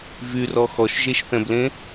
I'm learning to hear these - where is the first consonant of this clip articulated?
lips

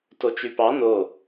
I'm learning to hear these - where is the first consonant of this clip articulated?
tongue tip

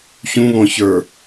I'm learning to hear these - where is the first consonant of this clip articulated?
palate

